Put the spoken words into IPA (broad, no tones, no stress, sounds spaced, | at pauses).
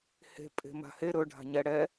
h e̤ pʼ e̤ m a̤ h e ɾ ɵ ɖʱ a̤ ɲ ɛ ɽ ɛ